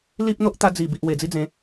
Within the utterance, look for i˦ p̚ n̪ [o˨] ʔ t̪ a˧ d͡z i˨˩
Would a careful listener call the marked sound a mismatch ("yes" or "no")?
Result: yes